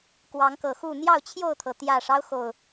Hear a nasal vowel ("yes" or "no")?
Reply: no